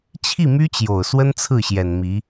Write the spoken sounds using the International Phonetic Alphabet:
t͡ɕʰ i˥˩ m y˥ t͡ɕ j o˨˩ ʊ̯ s w ə˥ n t͡sʰ ɹ̩˥˩ ɕ j ɛ˨˩ n m i˧˥

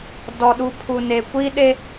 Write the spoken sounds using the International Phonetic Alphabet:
d ɔ˨ ɗ u˨ pʰ u˨ n e˨ kʷ iː˦ ɗ e˦

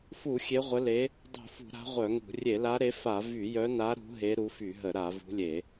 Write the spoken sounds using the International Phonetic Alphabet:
f u˧˩˧ xʲ e˨˦ ʁʷ ə˨˦ l e˨˦ | dˤ ṳ˧˩˧ f ṳ˧˩˧ ɾ a̤˨˦ ʁʷ œ˧˩˧ ŋ ṳ˧˩˧ rʲ e˧˩˧ l a˨˦ ɾ e˨˦ f a˧˩˧ v y˧˩˧ j œ˨˦ n a˨˦ ɾ ṳ˨˦ ɦ e˨˦ ɾ u˨˦ f y˧˩˧ ɦ ə˧˩˧ ɾ a˧˩˧ v ṳ˨˦ lʲ e˧˩˧

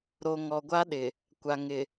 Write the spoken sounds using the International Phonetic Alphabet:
ɾ o˨ ŋ ɔ˨ ɡʷ a˦ ɗ ɪ˨ | kʷ a˨ ŋ ɪ˨

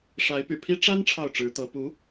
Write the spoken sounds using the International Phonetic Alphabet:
ʂ a˧˥ ɪ̯ p y̰˨˩ pʰ i˥ ʈ͡ʂ a˥ n ʈ͡ʂʰ ɑ˥˩ ʊ̯ ʈ͡ʂ ɻ̩˧˥ t̪ ɤ˧˥ p u˧˥

